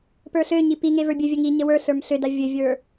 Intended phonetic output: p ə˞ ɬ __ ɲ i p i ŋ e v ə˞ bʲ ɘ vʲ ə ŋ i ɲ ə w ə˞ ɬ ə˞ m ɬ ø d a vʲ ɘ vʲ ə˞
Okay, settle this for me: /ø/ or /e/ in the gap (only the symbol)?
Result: ø